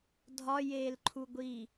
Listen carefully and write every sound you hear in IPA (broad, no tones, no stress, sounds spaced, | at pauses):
dʱ ɒ j eː l ǃʰ u ɡʷ iː